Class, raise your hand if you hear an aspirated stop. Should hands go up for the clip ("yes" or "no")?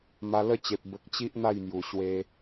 no